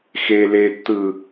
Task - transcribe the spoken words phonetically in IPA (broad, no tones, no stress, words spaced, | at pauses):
xe letːɯ